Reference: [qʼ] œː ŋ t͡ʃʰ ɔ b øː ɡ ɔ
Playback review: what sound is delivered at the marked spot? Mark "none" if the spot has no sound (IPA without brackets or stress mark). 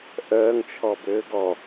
ʔ